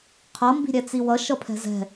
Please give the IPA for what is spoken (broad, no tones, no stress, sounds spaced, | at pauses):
qʰ ʌ m b i̤ ɾʲ ɛ t͡s i w ʌ ʃ ʌ pʰ ɛ̤ z ɛ̤